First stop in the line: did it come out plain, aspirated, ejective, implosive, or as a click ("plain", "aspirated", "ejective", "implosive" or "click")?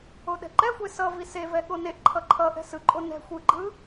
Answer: implosive